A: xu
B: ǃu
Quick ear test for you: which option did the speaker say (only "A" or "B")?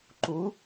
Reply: B